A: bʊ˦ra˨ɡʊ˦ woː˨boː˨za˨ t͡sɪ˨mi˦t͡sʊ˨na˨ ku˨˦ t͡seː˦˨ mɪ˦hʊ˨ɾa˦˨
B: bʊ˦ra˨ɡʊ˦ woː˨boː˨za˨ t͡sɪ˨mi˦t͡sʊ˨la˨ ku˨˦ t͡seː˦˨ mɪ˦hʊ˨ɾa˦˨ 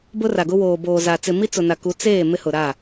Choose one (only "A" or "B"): A